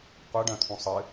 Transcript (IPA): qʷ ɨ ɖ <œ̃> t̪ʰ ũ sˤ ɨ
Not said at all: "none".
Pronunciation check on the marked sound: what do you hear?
œ̃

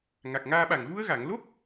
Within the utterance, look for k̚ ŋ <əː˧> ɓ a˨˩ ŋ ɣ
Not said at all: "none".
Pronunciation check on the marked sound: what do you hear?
aː˧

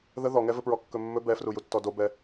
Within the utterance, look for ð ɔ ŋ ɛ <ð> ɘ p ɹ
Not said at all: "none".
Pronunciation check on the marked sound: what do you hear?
v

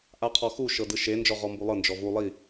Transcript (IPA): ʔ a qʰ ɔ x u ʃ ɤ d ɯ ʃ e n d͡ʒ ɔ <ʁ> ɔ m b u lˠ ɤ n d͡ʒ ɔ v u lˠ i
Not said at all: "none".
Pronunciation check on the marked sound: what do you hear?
ʁ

